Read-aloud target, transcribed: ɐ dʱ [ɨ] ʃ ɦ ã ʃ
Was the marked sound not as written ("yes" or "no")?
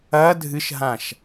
no